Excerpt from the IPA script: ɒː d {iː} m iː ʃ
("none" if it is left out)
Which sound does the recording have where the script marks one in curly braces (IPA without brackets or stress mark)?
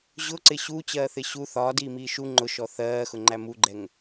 iː